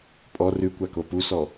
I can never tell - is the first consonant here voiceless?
yes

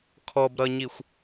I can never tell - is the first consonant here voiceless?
yes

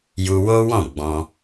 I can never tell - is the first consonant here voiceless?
no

